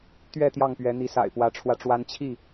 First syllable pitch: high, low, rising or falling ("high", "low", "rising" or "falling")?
falling